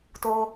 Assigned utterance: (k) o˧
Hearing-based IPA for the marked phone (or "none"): t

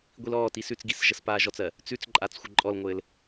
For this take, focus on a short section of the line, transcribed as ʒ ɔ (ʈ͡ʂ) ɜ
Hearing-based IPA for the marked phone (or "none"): t͡s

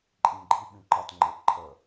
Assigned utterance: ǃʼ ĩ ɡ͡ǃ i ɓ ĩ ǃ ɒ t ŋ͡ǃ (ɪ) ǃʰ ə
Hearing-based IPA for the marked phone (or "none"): ɪ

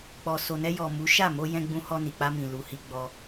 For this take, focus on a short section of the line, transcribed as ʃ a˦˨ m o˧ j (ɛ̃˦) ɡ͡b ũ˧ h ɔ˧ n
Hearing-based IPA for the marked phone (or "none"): ɛ̃˧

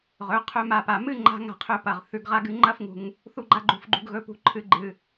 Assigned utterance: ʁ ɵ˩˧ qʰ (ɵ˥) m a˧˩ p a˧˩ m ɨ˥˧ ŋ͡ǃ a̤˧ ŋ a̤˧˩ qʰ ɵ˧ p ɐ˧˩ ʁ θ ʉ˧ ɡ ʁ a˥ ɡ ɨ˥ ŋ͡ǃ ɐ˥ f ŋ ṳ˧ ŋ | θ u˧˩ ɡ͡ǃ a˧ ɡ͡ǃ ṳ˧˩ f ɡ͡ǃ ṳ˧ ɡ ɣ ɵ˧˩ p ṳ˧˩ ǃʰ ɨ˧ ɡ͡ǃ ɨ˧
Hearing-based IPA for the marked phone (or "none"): ɵ˧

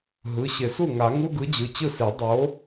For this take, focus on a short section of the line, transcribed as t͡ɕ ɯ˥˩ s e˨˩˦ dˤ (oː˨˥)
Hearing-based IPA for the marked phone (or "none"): o˨˥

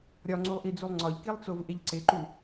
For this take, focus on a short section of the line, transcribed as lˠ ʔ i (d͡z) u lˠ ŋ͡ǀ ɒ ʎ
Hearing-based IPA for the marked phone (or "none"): d͡z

